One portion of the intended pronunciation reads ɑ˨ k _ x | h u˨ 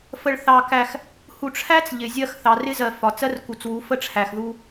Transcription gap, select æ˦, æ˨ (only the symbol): æ˨